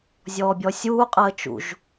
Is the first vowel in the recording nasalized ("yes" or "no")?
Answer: no